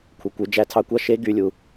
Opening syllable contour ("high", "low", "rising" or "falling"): low